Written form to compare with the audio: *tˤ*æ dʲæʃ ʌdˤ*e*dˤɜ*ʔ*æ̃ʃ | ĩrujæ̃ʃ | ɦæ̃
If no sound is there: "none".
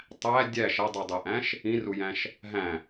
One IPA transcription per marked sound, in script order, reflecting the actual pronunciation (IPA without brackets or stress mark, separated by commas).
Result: tˤ, i, ʔ